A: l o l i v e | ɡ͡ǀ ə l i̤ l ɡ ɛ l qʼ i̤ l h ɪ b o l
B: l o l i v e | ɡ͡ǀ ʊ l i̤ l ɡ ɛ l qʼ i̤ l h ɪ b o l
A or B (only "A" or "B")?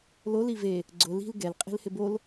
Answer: B